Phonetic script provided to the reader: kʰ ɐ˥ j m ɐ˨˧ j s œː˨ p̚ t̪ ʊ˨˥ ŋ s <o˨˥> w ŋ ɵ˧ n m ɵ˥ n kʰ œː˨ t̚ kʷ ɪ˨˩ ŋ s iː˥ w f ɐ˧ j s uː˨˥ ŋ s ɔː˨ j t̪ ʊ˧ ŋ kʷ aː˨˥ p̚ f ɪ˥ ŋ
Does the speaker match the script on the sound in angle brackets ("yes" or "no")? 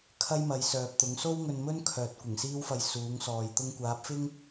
no